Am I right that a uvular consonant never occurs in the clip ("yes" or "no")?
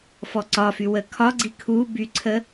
yes